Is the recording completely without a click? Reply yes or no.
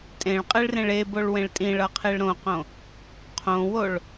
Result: yes